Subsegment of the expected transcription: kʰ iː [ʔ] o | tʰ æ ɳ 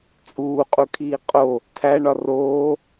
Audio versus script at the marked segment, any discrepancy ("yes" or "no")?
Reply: yes